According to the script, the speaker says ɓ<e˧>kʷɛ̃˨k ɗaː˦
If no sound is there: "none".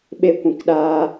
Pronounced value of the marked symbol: e˧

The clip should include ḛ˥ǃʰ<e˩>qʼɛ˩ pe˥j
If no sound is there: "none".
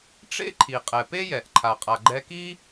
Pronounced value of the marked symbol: i˩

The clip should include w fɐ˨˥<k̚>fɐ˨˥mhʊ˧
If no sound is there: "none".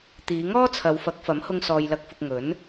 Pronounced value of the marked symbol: k̚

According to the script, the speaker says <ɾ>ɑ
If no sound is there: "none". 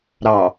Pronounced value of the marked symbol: ɾ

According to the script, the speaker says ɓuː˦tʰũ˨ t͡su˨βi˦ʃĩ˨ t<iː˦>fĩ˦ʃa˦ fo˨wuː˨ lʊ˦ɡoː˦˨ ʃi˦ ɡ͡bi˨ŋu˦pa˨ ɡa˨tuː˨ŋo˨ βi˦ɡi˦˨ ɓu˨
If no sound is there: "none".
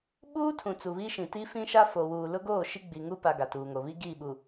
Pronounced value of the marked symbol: i˦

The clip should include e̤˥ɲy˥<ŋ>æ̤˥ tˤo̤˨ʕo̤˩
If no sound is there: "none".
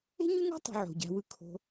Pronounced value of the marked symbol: ŋ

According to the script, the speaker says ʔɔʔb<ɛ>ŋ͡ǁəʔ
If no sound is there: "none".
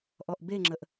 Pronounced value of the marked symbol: e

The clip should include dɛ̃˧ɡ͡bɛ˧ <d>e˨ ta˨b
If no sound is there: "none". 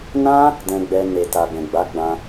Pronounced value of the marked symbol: n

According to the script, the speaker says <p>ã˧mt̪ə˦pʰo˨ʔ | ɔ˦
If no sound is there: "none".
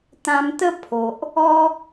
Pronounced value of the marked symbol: t̪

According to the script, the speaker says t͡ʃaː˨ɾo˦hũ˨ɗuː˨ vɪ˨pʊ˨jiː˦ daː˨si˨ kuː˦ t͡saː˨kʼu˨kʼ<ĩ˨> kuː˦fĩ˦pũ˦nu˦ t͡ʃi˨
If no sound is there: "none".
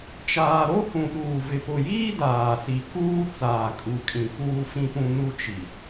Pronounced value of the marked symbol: ĩ˨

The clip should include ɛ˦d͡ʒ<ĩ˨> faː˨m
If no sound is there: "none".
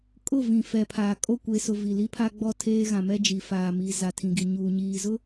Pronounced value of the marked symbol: i˨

